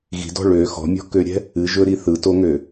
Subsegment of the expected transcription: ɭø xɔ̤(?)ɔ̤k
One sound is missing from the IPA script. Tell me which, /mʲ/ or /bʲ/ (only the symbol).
mʲ